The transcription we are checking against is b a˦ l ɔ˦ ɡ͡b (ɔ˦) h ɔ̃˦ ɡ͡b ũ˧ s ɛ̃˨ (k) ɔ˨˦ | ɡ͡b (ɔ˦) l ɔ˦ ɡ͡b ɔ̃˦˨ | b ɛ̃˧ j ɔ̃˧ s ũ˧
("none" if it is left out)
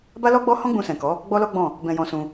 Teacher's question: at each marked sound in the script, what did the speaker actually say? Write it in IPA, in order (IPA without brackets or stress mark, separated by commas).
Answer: ɔ˦, k, ɔ˦